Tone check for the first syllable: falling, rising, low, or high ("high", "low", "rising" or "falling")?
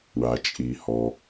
low